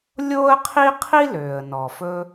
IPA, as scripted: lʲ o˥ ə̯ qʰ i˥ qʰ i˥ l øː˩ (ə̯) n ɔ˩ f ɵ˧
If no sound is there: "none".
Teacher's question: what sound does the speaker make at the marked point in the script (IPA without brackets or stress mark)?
ə̯